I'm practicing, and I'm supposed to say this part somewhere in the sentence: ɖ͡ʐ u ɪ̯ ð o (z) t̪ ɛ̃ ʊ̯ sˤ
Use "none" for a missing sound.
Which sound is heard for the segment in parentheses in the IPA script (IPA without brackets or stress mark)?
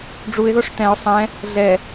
ʂ